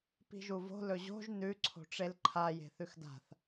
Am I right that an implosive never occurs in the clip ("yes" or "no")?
yes